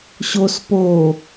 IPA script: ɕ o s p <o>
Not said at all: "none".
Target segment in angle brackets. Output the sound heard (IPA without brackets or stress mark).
o